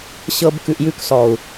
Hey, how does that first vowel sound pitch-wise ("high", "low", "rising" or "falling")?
low